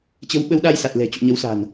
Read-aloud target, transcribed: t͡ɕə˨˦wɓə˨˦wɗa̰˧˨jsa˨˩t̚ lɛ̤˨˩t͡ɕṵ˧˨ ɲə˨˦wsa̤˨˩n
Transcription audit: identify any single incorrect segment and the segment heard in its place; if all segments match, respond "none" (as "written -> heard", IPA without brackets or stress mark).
a̰˧˨ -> a˧